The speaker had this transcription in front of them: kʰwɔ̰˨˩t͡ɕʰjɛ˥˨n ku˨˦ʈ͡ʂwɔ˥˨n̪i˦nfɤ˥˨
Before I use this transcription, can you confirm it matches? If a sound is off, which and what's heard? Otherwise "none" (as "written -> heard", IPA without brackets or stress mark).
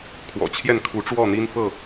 k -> kʰ